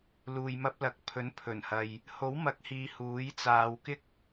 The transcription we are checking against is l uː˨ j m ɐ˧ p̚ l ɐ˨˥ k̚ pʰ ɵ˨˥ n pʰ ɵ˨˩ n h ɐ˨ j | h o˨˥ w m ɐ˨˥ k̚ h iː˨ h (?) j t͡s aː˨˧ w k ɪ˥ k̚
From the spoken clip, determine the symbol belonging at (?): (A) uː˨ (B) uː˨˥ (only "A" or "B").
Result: B